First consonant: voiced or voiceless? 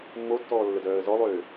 voiced